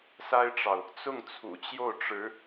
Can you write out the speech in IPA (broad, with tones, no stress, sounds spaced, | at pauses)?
s a˥ ɪ̯ ʈ͡ʂ ɑ˨ ʊ̯ | t͡s ʊ˥˩ ŋ t͡sʰ ṵ˨˩ t͡ɕ j o˥˩ ʊ̯ ʈ͡ʂ ɻ̩˧˥